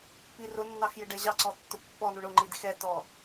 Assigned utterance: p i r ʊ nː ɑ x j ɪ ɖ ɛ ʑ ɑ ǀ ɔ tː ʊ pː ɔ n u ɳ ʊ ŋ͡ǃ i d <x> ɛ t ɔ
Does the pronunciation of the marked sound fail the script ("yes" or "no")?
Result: no